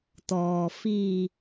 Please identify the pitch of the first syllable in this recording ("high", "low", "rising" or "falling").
low